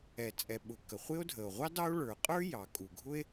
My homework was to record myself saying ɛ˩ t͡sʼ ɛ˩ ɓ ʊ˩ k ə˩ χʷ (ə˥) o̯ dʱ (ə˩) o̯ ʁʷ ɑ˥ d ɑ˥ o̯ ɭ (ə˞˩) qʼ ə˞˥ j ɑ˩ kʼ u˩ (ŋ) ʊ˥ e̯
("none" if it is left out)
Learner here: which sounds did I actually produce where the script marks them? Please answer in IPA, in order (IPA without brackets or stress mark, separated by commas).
ɪ˥, ə˩, ə˞˩, ɡʱ